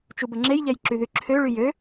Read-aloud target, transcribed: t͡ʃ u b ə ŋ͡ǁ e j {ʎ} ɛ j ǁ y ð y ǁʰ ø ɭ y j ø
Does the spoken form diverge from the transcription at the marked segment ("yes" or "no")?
no